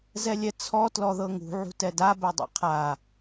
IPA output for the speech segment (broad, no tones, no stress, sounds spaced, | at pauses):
z ɛ lʲ ɛ t͡sʰ ɔ t l ɔ ð ɤ ŋ ṳ ʕ ṳ t ɛ d a b ɛ dˤ ḭ qʰ a